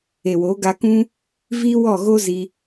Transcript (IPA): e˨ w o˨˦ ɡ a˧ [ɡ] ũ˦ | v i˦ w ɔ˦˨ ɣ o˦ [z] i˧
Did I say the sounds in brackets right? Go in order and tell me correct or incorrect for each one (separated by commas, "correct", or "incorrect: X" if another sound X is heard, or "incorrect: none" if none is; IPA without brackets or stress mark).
incorrect: k, correct